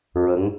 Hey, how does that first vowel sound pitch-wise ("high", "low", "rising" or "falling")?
rising